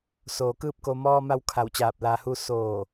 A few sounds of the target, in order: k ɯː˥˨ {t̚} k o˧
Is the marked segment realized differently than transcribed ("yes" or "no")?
yes